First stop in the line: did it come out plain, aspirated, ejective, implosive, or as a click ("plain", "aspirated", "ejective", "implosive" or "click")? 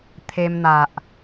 aspirated